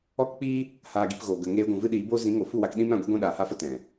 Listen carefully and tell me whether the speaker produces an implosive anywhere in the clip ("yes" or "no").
yes